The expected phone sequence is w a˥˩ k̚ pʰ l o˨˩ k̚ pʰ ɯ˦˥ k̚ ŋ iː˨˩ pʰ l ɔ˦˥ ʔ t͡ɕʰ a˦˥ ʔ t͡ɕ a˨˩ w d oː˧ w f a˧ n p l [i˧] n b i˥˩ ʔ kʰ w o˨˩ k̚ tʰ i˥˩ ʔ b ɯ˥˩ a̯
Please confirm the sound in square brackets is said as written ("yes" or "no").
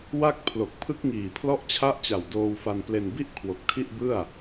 no